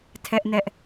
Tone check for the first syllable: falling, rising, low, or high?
high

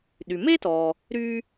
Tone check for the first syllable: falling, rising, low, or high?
low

